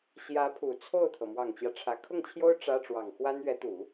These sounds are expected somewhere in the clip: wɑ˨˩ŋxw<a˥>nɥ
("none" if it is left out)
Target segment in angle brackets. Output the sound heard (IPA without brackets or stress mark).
a˥